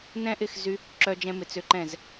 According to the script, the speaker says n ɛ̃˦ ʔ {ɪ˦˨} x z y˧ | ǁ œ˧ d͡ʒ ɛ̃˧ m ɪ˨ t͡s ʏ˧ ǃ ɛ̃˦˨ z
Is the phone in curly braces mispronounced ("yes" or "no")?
no